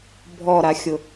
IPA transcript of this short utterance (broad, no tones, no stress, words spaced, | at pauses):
bʱɔɾaxʲʊ